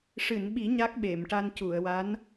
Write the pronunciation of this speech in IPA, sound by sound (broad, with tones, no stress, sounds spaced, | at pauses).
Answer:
ʂ ɨ˨˩˨ n ɓ i˨˩˦ ɲ a˦˥ k̚ ɓ e˨˩˨ m ʈ a˧ n c u˨˩˨ ə̯ w a˧˥ n